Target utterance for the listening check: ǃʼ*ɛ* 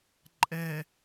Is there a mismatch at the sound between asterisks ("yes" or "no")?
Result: no